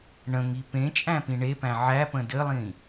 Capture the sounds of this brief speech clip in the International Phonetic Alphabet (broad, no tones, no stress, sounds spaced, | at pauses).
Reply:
ɳ ə̃ ŋ i p ẽ t͡ʃʼ æ̃ p ĩ ɳ e p æ̃ ʕ æ p ə̃ d ɘ lˠ ĩ